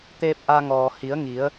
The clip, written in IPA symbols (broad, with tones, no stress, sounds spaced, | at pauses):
t̪ eː˧ p̚ ʔ a˧ ŋ ɔː˩ h i˩˧ ə̯ ŋ i˩˧ ə̯